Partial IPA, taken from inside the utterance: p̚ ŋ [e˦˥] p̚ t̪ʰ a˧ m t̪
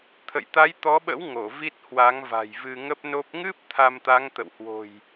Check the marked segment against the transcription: incorrect: ɨ˦˥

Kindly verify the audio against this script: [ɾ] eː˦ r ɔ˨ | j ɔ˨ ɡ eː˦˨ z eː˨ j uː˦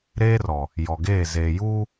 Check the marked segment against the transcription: correct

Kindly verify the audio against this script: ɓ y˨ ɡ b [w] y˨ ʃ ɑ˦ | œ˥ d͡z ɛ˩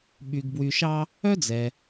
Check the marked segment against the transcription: correct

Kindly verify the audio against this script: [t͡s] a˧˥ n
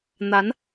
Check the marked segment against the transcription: incorrect: n̪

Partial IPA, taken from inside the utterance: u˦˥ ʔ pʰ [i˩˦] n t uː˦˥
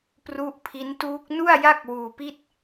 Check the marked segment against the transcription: incorrect: i˦˥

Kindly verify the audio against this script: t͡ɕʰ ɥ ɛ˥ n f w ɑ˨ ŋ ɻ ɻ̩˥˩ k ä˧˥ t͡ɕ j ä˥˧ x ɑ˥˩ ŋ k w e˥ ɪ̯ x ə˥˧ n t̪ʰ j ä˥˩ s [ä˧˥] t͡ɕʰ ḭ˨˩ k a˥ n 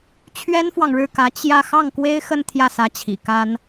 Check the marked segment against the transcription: correct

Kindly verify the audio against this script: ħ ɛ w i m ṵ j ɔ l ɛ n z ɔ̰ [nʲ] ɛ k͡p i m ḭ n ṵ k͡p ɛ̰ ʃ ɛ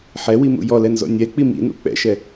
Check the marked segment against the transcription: correct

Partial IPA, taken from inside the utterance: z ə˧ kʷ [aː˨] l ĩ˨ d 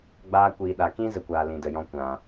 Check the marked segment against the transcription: correct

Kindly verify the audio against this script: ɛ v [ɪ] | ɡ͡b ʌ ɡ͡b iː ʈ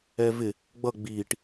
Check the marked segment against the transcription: correct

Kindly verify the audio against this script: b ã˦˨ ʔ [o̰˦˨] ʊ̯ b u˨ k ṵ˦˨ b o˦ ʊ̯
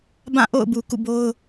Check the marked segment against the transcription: correct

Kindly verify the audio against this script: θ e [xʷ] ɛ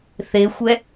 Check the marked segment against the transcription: correct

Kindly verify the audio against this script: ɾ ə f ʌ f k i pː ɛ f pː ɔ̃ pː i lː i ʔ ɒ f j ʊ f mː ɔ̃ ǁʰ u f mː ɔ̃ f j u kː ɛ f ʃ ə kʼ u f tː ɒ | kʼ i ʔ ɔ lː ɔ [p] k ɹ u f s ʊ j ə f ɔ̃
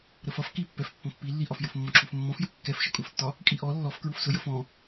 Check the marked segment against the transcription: incorrect: f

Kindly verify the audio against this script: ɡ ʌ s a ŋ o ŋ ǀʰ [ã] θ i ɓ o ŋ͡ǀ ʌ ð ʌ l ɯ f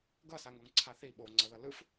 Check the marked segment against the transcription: incorrect: a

